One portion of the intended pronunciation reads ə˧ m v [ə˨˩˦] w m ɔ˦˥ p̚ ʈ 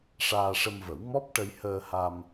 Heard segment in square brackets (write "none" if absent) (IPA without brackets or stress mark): ə˨˩˦